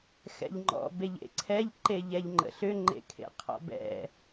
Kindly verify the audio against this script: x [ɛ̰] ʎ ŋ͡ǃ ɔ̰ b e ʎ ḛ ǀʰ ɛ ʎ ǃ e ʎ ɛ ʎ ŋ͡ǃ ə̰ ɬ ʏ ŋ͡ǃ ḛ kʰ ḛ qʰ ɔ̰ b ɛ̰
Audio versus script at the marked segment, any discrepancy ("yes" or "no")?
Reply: no